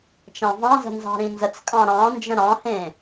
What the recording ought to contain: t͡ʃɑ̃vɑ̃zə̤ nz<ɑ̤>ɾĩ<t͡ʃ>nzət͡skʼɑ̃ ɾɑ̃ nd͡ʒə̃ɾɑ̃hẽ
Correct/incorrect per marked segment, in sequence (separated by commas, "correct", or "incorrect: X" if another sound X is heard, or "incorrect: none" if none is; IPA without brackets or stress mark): correct, incorrect: none